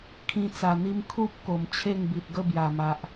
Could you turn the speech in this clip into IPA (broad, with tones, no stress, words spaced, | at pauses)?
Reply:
kʰĩ˧t͡sa˨˩n̪i˧m kʰu˦p̚ ko˨˩mt͡ɕʰe˥˧ŋbi˨t̚ɡə˥˧ bja˨˩ma˨ʔ